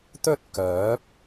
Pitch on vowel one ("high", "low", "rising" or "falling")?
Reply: high